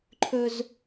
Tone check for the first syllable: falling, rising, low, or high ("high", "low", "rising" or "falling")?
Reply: high